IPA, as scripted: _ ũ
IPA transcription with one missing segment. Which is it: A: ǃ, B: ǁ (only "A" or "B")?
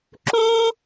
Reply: B